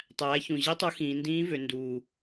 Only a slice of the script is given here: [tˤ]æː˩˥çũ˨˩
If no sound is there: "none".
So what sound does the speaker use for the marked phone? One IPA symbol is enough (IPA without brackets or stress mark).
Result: tˤ